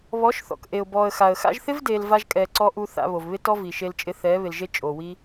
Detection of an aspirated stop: absent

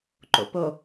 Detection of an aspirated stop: absent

